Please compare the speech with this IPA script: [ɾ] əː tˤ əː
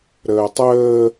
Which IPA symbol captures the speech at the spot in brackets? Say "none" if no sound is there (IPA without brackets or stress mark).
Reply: ɾ